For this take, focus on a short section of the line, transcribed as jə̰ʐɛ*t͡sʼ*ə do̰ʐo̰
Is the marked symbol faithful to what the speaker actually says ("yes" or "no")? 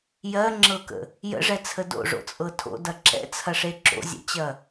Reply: no